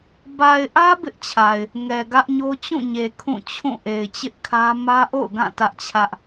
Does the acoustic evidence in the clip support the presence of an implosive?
no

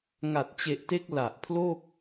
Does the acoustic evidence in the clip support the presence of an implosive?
no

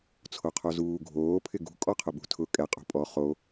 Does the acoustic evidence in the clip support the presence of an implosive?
yes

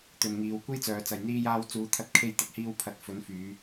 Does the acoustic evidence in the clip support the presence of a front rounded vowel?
yes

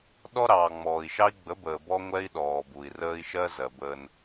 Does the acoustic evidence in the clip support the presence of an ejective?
no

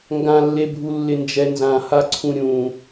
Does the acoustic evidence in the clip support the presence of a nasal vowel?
yes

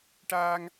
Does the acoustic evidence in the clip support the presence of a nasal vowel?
no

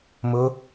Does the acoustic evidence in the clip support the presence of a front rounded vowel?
no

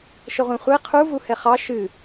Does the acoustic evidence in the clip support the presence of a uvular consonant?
yes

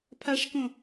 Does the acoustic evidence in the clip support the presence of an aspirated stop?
yes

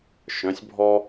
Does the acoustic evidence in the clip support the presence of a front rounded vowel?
yes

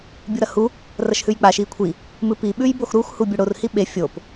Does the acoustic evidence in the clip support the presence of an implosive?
yes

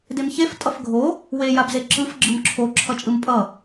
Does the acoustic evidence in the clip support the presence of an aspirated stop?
yes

